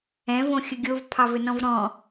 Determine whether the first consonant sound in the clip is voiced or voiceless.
voiced